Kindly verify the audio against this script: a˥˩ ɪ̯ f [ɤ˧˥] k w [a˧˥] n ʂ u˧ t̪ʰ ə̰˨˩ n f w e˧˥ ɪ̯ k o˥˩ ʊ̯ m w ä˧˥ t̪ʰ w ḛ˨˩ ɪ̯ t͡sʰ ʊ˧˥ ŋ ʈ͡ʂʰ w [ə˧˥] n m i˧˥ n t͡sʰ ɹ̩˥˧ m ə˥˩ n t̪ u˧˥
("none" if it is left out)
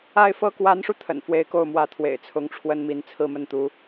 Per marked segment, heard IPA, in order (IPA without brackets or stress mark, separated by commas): ɤ˥, a˧˥, ə˥